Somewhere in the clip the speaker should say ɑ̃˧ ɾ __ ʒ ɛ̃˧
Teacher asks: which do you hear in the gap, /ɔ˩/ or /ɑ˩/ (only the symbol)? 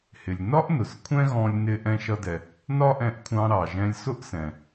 ɑ˩